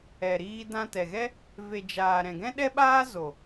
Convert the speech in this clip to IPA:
ɛ˨ ɾ iː˧ d ã˧ t ɛ˨ ɣ ɛ˦ | v e˨ d͡ʒ aː˨ ɾ ɛ̃˨ ɡ ɛ̃˦ ɗ ɛ˦ ɓ aː˦ z o˨

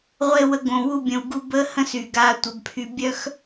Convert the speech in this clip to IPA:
ʁʷ e˧ w ə˧ ɡ õ˨ w u˧ bʲ ə̃˨ w ɡ u˧ b ə˦ h ə̃˦ s y˨ ɡ a˧ tʷ ə˨˦ b pʰ y˧ bʲ œ˦ x

